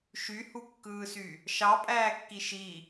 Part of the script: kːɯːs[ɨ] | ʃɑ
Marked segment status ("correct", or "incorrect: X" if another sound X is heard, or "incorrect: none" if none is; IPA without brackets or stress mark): incorrect: y